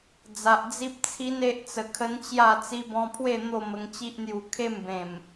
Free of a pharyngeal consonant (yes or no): yes